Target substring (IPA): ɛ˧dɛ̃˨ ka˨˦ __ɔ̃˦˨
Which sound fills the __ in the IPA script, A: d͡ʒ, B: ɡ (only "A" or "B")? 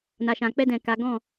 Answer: B